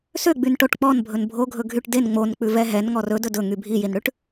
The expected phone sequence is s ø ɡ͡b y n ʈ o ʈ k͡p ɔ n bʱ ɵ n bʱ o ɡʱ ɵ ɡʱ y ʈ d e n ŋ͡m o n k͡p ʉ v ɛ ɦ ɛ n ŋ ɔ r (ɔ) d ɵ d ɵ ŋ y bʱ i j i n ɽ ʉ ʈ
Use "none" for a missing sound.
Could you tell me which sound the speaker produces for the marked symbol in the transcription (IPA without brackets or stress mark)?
ɵ